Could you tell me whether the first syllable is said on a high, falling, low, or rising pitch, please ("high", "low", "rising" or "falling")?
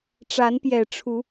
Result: rising